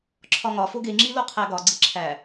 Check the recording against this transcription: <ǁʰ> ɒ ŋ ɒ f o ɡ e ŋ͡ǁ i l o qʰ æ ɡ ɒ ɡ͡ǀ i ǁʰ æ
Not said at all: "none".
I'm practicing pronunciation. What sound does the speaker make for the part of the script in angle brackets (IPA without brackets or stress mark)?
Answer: ǁʰ